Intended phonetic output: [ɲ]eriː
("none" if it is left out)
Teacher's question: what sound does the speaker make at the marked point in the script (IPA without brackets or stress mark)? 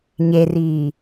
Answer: ɲ